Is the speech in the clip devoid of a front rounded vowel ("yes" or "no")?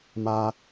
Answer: yes